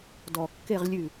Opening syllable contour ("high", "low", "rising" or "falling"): low